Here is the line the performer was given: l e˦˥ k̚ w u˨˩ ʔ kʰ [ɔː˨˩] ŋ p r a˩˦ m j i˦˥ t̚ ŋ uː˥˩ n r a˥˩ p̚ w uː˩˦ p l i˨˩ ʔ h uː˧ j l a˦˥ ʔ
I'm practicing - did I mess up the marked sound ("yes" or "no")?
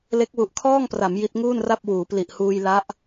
yes